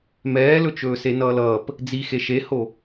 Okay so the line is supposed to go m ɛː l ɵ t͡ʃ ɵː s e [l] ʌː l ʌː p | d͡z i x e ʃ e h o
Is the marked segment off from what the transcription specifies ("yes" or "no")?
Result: yes